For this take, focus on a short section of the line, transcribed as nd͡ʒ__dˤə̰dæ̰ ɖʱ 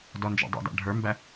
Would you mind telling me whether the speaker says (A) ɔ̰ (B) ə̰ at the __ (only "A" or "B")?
A